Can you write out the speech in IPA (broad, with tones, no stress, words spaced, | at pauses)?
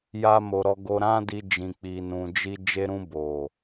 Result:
ja˦mo˧ ɾɔ˧ɡo˧ɾã˦di˧ d͡ʒĩ˨k͡pi˨nũ˨d͡ʒi˧ d͡ʒe˧ɾũ˧ bo˨